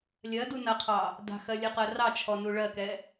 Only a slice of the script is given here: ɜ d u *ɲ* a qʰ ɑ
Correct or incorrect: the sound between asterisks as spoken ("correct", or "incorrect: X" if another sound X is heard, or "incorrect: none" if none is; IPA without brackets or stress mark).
incorrect: n